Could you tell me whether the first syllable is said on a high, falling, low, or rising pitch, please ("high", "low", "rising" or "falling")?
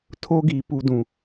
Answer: high